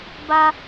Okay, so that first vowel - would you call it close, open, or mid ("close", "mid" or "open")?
open